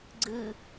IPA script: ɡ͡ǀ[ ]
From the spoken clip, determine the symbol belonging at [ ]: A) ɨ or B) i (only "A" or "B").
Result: A